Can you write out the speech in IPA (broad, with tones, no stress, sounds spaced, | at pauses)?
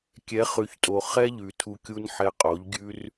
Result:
kʲ ɛ˨˦ χ ʉ˨ ç tʼ o˨ χ ɛ˦ ʎ ʉ˨ tʰ u˧ kʲ u˦ n ħ ɛ˧ qʼ o˨˦ ʎ ɡʲ ʉ˦ r